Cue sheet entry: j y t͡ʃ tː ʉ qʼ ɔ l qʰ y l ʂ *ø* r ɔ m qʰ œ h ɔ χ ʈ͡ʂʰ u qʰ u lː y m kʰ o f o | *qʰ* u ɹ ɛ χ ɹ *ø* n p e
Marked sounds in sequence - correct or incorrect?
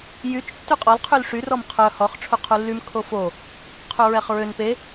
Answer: incorrect, correct, correct

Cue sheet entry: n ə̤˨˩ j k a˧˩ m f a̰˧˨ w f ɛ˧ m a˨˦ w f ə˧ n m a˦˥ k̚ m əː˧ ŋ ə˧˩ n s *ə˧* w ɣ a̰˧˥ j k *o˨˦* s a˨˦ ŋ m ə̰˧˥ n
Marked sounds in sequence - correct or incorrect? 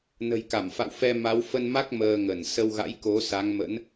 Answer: correct, correct

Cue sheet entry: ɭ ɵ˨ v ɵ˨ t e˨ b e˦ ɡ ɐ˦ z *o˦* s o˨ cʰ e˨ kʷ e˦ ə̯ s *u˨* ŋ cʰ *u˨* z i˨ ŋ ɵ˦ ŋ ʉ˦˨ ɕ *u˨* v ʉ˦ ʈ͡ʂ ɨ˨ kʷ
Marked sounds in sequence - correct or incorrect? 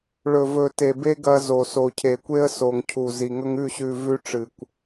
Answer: incorrect, incorrect, correct, incorrect

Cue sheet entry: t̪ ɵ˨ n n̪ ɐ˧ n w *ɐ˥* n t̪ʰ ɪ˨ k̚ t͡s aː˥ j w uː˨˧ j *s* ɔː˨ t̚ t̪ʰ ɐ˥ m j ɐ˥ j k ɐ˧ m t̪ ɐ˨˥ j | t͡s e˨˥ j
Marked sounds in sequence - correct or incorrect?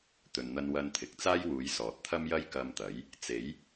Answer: incorrect, correct

